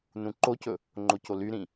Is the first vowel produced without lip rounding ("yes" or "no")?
no